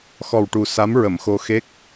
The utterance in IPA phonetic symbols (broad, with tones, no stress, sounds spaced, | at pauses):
x ɔ˨˩ w ʈ u˨˩ s a˧˥ m ɹ ə˨˩˨ m x o˧ x e˦˥ k̚